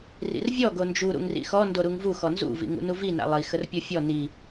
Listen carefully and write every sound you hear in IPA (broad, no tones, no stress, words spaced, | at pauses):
rḭrvʲɔ ɡond͡ʒu ɾṵŋrḭxɔ ndoɾuŋvu xɔnzṵ vḭŋṵnuvi na̰lˠi xərpʲofʲɔ ni